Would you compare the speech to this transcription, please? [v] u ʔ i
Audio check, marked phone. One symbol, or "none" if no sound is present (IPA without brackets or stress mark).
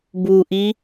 b